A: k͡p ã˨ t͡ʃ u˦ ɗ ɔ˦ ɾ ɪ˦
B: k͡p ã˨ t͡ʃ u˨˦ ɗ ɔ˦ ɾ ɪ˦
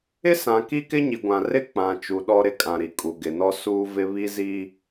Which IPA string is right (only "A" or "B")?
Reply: B